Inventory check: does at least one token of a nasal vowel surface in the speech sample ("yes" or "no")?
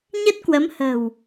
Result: no